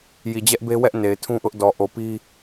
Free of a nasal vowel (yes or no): no